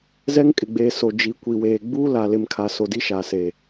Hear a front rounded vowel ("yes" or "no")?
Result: no